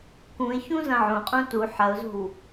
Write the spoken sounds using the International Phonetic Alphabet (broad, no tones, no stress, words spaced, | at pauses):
kũɪ̯çũ zɐ̃ʕõqʼũ tu ħɐʊ̯zo̤w